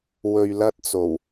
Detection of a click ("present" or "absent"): absent